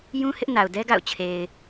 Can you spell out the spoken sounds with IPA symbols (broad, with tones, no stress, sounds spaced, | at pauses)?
j ũ˦ h ɪ˦ ʔ n a˨ ʊ̯ d ɛ˦ ɡ a̰˦˨ ʊ̯ t͡ɕʰ e˨ ɪ̯